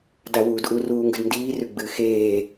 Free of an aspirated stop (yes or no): yes